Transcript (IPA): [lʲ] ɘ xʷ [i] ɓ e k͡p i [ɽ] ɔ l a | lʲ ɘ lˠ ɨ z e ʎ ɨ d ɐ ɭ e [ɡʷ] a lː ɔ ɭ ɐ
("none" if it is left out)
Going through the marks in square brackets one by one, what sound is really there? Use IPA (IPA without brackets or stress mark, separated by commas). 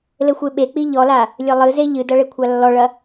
l, e, ʎ, kʷʰ